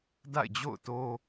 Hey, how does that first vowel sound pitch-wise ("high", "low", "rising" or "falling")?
falling